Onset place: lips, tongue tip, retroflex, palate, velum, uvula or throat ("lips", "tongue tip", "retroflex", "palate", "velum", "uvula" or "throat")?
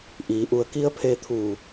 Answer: throat